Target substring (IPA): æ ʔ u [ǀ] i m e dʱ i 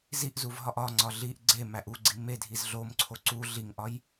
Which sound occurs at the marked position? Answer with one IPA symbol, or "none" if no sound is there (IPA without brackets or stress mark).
ɡ͡ǀ